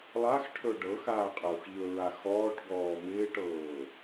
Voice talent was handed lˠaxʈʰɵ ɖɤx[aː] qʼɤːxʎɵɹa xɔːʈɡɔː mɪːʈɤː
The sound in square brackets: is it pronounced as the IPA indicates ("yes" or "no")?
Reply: yes